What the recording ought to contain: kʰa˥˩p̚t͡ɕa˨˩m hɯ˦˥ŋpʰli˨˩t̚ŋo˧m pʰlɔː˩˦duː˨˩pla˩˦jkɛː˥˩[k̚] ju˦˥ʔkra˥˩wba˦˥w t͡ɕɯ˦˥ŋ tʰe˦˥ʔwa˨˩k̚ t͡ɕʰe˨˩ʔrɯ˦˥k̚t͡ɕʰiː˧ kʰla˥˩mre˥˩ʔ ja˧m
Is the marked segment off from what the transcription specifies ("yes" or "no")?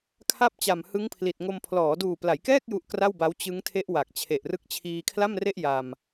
no